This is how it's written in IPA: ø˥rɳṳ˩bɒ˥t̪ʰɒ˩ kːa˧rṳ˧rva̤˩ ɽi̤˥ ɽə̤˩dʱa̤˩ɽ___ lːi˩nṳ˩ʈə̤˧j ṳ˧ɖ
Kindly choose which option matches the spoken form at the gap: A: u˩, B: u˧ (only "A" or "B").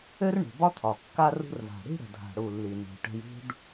A